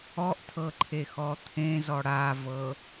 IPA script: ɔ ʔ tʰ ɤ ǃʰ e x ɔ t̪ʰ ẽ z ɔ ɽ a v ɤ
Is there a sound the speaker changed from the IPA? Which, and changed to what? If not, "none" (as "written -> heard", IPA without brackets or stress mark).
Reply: none